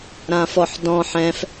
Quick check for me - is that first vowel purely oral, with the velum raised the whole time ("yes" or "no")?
no